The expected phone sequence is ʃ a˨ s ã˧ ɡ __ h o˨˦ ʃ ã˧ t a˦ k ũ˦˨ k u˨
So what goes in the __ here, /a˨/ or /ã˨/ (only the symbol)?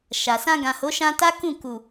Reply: ã˨